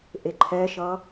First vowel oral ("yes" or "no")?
yes